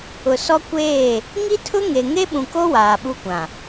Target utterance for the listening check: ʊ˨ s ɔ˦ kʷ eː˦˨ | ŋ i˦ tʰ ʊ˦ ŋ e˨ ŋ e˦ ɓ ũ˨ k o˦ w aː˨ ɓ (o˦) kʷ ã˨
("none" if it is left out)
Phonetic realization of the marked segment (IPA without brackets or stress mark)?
u˦